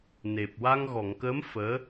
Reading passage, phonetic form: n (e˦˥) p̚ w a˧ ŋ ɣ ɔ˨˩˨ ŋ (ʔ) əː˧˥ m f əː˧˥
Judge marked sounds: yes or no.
no, no

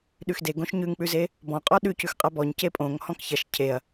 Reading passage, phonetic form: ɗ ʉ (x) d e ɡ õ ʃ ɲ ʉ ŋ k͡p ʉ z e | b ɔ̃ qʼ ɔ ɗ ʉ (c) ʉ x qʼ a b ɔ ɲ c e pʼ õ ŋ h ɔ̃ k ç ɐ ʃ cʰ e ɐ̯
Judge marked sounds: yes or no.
yes, yes

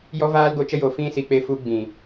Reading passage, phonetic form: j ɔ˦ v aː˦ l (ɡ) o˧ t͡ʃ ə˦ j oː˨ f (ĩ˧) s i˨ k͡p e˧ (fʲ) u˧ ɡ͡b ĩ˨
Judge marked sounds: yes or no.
yes, yes, no

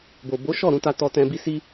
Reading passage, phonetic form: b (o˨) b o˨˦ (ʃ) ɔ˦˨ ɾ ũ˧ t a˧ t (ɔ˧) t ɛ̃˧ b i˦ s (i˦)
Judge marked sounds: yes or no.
yes, yes, yes, yes

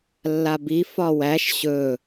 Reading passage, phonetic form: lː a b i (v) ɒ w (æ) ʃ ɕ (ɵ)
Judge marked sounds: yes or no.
no, yes, yes

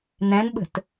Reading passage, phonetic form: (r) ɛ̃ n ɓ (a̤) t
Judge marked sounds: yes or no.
no, no

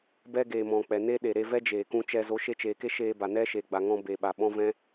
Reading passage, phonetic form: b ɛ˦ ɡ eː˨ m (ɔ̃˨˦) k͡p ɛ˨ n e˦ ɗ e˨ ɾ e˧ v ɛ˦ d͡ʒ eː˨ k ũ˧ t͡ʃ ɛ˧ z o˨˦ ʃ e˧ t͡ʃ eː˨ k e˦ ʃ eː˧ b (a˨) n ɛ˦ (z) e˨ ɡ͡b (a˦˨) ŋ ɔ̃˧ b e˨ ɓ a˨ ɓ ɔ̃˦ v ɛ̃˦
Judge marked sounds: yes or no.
no, yes, no, no

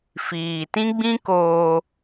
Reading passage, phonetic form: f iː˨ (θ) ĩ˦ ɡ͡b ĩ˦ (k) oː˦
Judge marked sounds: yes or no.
no, yes

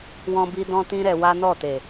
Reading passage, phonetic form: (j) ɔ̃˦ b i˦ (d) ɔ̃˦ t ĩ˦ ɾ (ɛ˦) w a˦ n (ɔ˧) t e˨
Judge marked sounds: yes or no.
no, yes, no, no

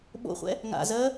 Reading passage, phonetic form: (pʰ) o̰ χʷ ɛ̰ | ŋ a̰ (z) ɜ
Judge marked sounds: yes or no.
no, yes

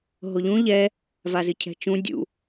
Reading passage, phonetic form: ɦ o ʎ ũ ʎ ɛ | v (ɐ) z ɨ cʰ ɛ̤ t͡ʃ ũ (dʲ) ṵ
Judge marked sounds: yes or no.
no, yes

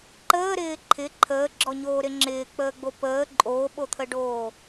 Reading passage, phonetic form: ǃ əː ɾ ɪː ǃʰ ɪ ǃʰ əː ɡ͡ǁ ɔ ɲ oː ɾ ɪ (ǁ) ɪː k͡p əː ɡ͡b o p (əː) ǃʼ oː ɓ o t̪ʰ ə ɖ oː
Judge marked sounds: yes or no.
no, yes

